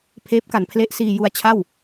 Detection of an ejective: absent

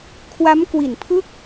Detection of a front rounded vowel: absent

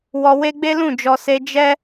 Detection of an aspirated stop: absent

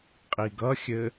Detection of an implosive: absent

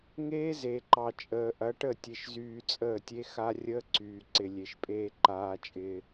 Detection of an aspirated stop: absent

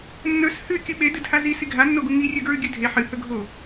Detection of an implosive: present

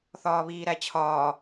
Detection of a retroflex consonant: absent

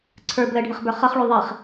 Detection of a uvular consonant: present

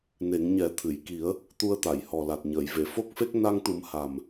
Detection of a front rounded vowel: absent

